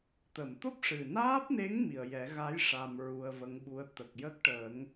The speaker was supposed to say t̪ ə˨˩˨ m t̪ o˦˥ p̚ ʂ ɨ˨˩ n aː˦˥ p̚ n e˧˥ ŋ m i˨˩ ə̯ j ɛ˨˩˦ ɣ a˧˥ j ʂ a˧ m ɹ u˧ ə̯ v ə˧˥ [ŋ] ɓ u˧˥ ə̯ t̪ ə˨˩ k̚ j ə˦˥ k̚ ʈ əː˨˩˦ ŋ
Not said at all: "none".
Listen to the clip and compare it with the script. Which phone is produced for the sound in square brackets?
ŋ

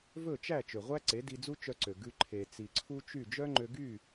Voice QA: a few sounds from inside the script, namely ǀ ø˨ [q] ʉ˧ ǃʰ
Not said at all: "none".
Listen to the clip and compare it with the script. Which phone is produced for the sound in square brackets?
ɡ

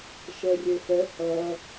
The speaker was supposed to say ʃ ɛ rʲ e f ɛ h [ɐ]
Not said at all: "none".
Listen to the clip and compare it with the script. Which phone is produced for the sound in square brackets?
ɐ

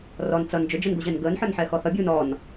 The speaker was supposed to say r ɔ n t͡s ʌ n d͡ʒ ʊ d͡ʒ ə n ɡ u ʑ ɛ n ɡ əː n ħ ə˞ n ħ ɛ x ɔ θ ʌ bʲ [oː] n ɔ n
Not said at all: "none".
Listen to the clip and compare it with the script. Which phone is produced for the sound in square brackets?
uː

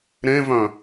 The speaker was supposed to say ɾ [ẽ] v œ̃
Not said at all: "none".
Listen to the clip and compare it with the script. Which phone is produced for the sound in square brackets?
ẽ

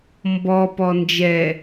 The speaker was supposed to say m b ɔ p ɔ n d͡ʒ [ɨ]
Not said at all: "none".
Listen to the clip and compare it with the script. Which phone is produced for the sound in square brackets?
ɛ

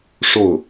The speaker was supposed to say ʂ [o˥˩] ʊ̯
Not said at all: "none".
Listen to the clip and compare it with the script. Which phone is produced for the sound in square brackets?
o˥˩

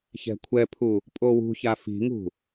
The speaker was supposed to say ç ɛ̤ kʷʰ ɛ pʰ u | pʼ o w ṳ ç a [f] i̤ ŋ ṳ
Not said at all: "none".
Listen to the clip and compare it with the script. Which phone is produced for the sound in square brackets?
f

